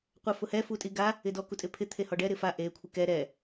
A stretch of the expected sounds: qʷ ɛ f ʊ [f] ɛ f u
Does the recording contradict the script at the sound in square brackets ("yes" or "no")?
yes